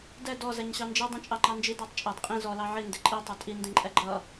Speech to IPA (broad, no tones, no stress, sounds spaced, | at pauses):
d ɛ d ɔ z ɛ ɲ ɕ ɑ n d͡ʒ i dˤ ɛ̃ t͡ʃʼ ɑ ŋ͡ǃ ɑ n d͡ʒ i d ɑ tˤ t͡ʃʼ ɑ d qʼ ĩ z ɔ l ɑ ʕ i n d ɪ ǃʼ i tˤ ʌ tʼ i n d ĩ ǃʼ ɛ ɡ͡ǃ ʌ